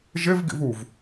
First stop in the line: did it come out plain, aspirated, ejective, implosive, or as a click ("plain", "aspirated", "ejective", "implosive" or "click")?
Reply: plain